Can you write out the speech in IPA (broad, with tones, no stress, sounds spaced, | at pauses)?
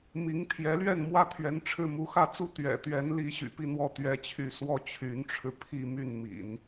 m i˧˥ ŋ t̪ʰ j ɛ˧˥ l ɥ ɛ˥˧ n m w ä˥˩ t̪ʰ ɥ ɛ˧˥ n ʈ͡ʂʰ ɻ̩˥˩ m u˧˥ x ä˥˩ t͡s u˥ t̪ ɥ ɛ̰˨˩ t̪ ɥ ɛ˧˥ n l i˧˥ ɕ y̰˨˩ p i˥˧ n̪ w ɔ˥˩ t̪ ɥ ɛ˥ t͡ɕʰ y˥˧ s w ɔ˥˩ t͡ɕʰ y˧˥ n ʈ͡ʂʰ ɻ̩˧ pʰ i˥˧ m y˥˩ n m ḭ˨˩˦ n